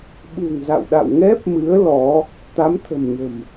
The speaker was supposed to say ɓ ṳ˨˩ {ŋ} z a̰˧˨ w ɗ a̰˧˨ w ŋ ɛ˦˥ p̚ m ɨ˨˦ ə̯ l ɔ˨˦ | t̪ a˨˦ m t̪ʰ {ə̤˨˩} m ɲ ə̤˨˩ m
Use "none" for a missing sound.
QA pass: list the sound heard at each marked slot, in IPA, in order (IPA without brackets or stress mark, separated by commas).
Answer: ŋ, ə̤˨˩